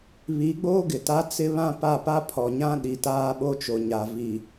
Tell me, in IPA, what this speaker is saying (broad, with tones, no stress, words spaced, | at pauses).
βi˨˦ɡ͡boː˦ ɡɪ˨ta˦ t͡sɪ˦βã˦pa˦˨pa˦ pʰɔ˨ɲã˦ɗi˨ taː˦ɓo˦t͡ʃo˨ɲa˨ vi˨